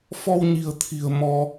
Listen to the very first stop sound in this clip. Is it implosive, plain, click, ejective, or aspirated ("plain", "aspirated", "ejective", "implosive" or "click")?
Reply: aspirated